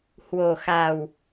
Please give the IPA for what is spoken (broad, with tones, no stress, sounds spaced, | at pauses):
h w o˨˩ x a˨˩ w